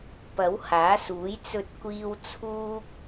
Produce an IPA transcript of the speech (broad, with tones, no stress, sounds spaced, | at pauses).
p ɐ˨˥ w h aː˨˥ s uː˨˥ j t͡s ɵ˧ t̚ kʷ iː˧ w t͡sʰ uː˥ k̚